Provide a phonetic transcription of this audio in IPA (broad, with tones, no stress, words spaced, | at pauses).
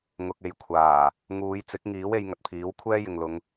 ŋʊ˨k̚e˨jkʷʰaː˨˩ | ŋuː˨˧jt͡sɪ˨˥k̚ŋiː˨˥w e˨˧jŋɐ˨t̚pʰiː˨˥w kʷʰɛː˥jɪ˨ŋlʊ˨˧ŋ